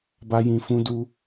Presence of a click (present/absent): absent